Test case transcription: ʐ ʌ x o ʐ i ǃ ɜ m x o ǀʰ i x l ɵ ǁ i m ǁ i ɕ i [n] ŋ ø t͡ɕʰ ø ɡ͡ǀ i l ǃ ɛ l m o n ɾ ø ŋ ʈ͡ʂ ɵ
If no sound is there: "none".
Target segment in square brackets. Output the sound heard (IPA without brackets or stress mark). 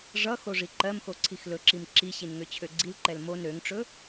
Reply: n